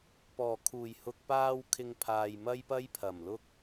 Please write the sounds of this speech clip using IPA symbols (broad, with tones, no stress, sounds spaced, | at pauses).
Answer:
p ɔː˨˩ kʰ uː˨˩ j h ʊ˨ k̚ p aː˧ w kʰ ɪ˧ ŋ pʰ aː˨ j m ɐ˥ j p ɐ˥ j pʰ ɐ˨˩ m l ʊ˥ k̚